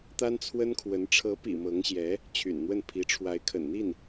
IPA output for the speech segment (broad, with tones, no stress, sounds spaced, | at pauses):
t̪ a˥ n t͡sʰ w ə˥ n kʰ w ə˧˥ n ʈ͡ʂʰ ɤ˧˥ p ḭ˨˩ m ɤ˧˥ ŋ ɕ j ɛ˧˥ | t͡ɕʰ y̰˨˩ n n̪ w ə˥˩ n pʰ i˧˥ ʈ͡ʂʰ w a˧˥ ɪ̯ kʰ ə̰˨˩ n n̪ i˥˩ n